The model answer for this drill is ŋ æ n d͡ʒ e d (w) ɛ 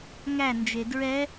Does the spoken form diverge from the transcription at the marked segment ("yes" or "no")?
yes